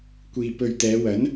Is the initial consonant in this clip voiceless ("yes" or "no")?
yes